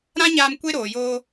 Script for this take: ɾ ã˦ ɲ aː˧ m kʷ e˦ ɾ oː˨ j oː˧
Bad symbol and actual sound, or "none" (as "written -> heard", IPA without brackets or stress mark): none